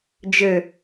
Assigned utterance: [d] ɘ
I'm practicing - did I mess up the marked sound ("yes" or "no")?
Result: yes